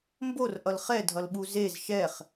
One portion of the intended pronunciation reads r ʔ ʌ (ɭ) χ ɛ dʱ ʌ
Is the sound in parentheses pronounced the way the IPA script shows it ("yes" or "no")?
no